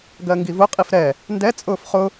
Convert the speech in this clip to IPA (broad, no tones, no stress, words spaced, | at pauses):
ɡɜŋɡivʊ qʼifɾɛ | ndɛ t͡sʼʊːfχʊ